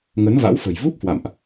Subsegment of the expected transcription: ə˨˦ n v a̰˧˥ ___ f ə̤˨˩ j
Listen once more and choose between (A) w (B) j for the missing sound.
A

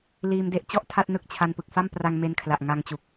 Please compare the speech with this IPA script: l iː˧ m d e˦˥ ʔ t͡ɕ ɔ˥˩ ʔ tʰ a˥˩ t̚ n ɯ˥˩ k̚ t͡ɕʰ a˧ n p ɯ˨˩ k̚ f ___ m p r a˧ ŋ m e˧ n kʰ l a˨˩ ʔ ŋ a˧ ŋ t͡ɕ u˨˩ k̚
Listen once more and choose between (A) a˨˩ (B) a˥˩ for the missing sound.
B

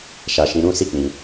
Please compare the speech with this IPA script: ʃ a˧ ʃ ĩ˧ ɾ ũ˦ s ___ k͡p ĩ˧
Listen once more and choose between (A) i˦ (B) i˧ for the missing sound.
A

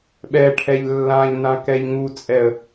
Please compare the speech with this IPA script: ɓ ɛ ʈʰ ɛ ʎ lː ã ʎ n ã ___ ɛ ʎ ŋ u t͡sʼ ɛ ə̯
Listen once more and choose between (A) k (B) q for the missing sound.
A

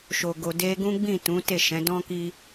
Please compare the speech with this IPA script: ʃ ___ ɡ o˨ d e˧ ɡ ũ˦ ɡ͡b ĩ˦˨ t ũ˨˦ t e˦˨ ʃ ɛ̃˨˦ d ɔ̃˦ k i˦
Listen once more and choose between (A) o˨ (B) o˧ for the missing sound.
A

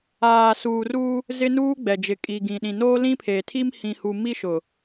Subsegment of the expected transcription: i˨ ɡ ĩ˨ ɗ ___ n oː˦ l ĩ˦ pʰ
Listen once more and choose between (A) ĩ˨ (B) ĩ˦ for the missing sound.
A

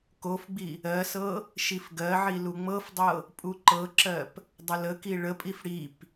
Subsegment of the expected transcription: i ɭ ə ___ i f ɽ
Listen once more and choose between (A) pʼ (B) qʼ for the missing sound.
A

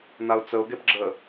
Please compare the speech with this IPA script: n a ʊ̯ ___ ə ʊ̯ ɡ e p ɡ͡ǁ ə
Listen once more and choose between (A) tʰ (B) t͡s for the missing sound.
B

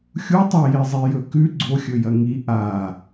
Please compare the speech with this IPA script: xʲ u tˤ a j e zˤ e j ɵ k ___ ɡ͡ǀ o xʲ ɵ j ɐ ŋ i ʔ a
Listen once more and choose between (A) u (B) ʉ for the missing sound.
B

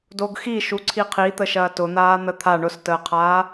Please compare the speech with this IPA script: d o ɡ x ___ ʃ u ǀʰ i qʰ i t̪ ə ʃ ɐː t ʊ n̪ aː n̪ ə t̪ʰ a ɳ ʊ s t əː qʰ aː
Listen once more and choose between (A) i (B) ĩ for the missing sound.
A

